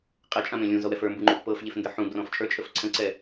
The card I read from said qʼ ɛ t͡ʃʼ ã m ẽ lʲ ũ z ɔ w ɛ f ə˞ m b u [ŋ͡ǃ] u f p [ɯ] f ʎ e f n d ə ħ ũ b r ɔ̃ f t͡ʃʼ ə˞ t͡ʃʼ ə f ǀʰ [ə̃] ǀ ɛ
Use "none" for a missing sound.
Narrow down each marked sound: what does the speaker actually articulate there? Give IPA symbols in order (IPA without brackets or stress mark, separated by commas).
ŋ͡ǃ, ɤ, ə̃